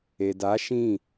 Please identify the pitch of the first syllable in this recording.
low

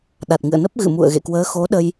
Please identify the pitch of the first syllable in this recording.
low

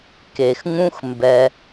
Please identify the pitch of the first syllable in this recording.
low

